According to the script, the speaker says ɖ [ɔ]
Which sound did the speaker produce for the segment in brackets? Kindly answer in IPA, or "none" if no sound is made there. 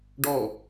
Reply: ɔ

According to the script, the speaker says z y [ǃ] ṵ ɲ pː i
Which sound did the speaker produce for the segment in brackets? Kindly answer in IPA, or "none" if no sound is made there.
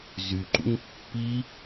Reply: ǃ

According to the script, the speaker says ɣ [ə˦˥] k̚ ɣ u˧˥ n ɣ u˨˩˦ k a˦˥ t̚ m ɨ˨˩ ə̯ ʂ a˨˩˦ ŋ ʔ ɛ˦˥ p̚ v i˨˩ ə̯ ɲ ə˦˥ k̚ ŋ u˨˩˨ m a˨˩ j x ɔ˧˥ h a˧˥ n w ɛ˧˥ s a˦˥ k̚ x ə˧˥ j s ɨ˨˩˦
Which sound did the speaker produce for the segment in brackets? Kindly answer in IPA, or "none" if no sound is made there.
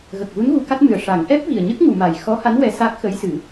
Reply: ə˨˩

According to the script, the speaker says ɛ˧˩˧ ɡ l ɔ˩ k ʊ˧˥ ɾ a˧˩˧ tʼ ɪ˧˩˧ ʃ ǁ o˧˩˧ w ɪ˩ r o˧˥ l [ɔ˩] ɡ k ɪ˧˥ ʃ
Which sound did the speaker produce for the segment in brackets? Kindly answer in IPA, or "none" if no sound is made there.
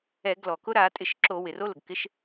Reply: ʊ˩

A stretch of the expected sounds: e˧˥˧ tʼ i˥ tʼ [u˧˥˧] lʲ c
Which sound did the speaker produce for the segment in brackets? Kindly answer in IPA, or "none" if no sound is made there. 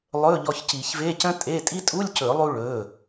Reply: u˧˥˧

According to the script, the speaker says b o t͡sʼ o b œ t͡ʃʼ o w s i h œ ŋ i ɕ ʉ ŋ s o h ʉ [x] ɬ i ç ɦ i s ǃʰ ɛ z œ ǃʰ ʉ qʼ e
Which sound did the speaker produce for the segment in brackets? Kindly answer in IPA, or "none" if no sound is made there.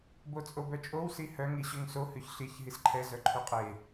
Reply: ç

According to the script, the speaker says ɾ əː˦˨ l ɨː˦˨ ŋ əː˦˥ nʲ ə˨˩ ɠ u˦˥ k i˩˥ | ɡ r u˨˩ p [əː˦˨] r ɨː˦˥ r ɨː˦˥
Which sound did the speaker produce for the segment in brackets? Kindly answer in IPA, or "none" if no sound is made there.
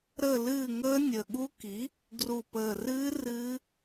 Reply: əː˨˩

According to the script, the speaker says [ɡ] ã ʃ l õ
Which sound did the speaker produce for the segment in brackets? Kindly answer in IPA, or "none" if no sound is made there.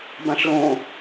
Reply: b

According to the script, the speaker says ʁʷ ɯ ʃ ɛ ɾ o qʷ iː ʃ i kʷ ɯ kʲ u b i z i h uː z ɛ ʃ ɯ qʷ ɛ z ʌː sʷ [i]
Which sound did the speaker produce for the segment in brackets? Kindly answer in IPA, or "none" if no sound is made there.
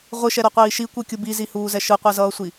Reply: i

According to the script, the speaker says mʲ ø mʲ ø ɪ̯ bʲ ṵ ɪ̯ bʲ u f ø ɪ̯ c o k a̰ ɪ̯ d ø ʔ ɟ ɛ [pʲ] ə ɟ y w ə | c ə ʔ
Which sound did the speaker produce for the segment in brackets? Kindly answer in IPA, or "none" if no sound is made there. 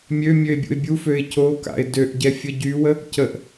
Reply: fʲ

